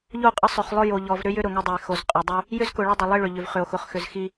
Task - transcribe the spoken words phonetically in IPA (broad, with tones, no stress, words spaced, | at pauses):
ʎo˦˨qʼə˦sˤʏ˨χlˠʊ˦ jo˨ʎɔ˨v ɾʏ˦jʏ˦ ɾʊ˨ŋʏ˦dˤə˨e̯xo˨z qʼʏ˨dˤʏ˦ | jʏ˦zkʊ˨ɭə˦dˤə˨ lˠi˦ɭʏ˨ʎʏ˨v χʏ˨o̯xʊ˨χxʏ˨z xi˦